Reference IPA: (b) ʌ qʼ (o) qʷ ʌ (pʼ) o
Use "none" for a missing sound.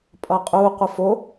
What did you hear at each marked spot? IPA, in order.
pʼ, u, f

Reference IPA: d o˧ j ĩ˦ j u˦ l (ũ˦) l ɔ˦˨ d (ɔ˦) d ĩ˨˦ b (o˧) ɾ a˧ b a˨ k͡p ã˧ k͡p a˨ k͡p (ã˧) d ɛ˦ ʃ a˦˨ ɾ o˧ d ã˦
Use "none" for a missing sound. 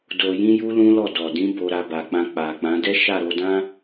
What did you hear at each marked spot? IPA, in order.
ũ˦, ɔ˨, o˧, ã˨˦

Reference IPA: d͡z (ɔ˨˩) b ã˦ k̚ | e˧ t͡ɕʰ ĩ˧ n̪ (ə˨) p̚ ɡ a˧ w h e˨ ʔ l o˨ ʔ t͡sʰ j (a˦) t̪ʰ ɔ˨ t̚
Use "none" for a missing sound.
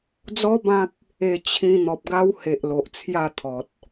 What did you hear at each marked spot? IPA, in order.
ɔ˦, ɔ˨, a˥˧

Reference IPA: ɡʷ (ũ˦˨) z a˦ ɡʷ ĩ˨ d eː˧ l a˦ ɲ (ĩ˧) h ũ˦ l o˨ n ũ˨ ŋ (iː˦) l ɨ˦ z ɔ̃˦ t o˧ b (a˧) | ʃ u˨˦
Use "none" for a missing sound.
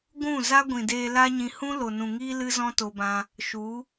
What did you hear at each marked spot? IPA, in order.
ũ˦˨, ĩ˧, iː˦, ã˧

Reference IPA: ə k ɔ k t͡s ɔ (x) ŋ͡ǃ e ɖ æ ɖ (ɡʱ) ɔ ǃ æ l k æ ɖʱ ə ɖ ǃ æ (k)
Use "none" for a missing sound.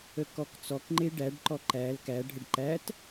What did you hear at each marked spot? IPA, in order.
k, ǃ, t

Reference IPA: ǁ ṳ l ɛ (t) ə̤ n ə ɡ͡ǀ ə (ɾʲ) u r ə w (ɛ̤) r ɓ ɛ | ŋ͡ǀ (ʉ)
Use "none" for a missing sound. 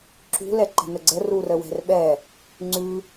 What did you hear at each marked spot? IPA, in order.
ǃ, r, ɛ̤, ʉ

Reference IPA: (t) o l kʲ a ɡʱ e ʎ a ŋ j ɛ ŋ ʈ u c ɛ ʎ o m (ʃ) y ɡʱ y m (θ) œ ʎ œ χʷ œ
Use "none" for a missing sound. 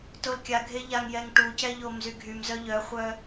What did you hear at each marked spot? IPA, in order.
t, z, z

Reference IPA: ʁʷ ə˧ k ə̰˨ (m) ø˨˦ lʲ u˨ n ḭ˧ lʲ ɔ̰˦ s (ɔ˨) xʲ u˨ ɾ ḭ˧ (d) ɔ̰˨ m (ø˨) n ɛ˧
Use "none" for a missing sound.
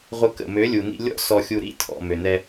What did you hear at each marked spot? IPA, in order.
m, ɔ˨, tʰ, ø˨

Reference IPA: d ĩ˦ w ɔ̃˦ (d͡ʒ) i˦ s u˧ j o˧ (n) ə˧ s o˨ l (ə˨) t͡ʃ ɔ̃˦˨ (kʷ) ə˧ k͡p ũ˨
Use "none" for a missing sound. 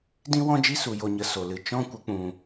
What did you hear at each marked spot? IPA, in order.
d͡ʒ, ɲ, ɨ˨, kʷ

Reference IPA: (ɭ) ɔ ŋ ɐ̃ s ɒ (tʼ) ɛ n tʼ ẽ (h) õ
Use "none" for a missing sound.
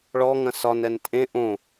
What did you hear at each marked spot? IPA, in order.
ɭ, n, ʔ

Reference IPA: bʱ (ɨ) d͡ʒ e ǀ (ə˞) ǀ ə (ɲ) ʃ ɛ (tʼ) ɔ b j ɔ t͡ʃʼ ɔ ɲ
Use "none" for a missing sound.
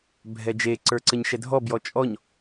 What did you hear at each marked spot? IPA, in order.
ɛ, ə˞, ɲ, dʱ

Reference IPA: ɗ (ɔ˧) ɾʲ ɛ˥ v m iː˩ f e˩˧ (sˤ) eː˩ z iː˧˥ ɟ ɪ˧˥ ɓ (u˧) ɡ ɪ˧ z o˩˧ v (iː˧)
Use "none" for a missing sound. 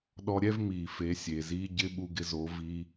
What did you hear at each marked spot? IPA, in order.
ɔ˧, sʲ, u˧, iː˧

